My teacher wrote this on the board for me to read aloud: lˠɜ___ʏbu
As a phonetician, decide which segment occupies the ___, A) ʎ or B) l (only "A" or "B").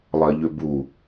A